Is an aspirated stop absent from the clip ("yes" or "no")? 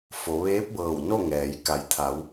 no